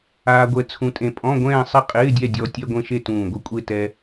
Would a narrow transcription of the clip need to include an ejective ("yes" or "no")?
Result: yes